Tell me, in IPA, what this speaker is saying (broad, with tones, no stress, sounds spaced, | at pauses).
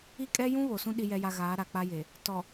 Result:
i˦ kʼ ɛ˦ j ũ˦ β o˨ s ũ˦ ɗ i˦ j ɛ˦ j a˦ ɣ aː˨˦ ɾ a˨ k͡p a˦ j e˨ | t ɔ˨